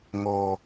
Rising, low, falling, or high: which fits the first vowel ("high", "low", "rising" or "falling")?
low